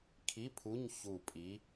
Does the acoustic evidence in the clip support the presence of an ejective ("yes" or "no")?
yes